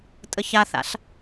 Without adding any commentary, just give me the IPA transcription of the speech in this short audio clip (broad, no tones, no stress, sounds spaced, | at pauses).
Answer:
tʼ ə ç a θ a̰ ɬ